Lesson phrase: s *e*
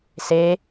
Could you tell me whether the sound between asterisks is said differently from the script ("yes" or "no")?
no